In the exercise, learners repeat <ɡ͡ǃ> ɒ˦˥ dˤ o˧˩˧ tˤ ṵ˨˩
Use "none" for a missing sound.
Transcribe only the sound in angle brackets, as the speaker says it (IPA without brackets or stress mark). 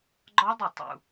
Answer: ɡ͡ǃ